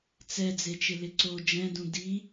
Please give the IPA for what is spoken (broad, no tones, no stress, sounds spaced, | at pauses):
t͡s ɛ d͡z e t͡ʃ ɪ l ɪ ǀ o d͡ʒ ɛ̃ d ũ d i